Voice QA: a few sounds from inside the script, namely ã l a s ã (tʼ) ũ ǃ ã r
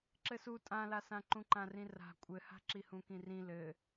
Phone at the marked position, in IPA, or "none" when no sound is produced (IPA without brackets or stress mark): ǃ